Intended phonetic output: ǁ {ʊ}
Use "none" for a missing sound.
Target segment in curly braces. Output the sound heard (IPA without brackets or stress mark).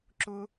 ʊ